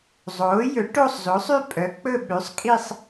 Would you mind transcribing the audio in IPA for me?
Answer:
zˤ oː˩˥ j ɵ˩˥ ʈ o˥˧ sˤ z o˩˥ sˤ y˥˧ pʼ œ˩˥ k͡p ɵ˥˧ ɓ ʉ˩˥ sˤ kʼ i˥˧ sˤ

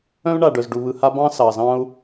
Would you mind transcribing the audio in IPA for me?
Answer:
œ̃˥ u̯ ɳ a˧ ɖ œ˧ z ɖ u˧ β ɯ˧ h a˥ b ɑ̃˥ s ɑ˧ z ɑ̃˥ u̯

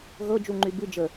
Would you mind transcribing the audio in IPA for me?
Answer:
ɣ ɤ d͡ʒ u ŋ͡ǃ y b ɨ d͡ʒ ə

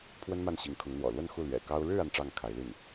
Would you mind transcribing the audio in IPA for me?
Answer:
pʰ w ə˥ n m a˥˩ n ɕ i˧˥ ŋ kʰ ʊ˧˥ ŋ n̪ w ɔ̰˨˩ l w ə˥˧ n x u˥˩ l ɥ ɛ̰˨˩ k ɑ˥ ʊ̯ ɻ ɻ̩˥˧ a˥˧ n ʈ͡ʂ ɑ˥˩ ŋ kʰ a˧˥ ɪ̯ l i˥˩ n

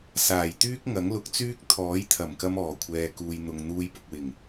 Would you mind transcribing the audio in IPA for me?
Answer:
s aː˨˩ j t̪ yː˥ k̚ ŋ ɐ˨˥ ŋ l ʊ˧ k̚ t͡s yː˥ k̚ t̪ʰ ɔː˨˥ j t̪ʰ ɐ˨˩ m k ɐ˧ m ɔː˨˩ kʷʰ ɛː˨ k uː˨ j n̪ ʊ˨ ŋ n̪ uː˧ j p ʊ˨ k̚ w ɪ˨˩ ŋ

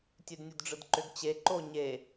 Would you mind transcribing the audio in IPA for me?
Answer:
tʲ ʉ d nʲ ʉ d ɖ͡ʐ ɯ d ǃ ʏ ɡ t͡ɕ e ǃ o ɲ e

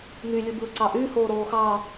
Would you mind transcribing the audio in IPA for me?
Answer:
ŋ y lʲ ɯ b ɯː ǀ ɑ ʔ y h oː ɾ oː x ɑ

